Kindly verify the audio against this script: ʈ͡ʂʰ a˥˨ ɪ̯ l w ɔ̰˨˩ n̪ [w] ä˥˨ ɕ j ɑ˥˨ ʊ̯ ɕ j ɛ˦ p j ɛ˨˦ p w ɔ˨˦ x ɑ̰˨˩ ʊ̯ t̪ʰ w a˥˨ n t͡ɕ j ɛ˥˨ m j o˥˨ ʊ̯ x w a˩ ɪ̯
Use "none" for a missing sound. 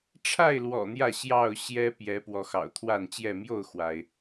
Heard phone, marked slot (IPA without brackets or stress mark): j